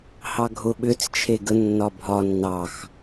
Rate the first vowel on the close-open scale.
open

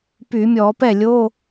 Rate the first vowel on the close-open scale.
close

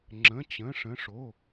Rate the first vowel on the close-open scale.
mid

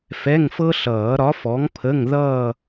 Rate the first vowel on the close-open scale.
mid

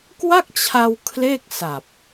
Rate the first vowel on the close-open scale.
open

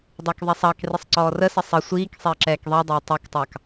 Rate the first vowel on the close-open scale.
open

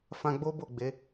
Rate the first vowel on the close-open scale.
open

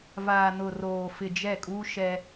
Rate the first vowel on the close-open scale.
open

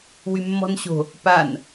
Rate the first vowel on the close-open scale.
close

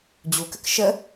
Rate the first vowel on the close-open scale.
close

